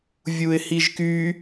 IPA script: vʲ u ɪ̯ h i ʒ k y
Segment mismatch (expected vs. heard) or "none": none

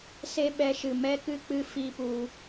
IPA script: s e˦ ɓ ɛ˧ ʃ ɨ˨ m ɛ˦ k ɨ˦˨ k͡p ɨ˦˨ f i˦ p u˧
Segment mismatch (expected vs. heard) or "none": none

